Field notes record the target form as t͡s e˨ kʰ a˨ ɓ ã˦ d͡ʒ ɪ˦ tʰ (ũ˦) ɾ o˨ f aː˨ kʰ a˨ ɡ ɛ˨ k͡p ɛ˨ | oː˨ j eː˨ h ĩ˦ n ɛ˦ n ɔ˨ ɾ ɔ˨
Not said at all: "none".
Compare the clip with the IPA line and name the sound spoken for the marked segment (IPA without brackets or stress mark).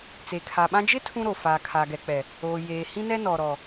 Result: ũ˦